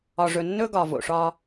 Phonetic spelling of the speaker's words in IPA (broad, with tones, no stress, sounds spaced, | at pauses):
ɒ˨ ʐ ɵ˨ nː ɵ˦ ɡ ɒ˨ v o̰˨ ʂ ɒ˦